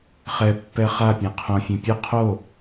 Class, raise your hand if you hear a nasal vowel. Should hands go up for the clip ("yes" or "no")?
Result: yes